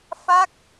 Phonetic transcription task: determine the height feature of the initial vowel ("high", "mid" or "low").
low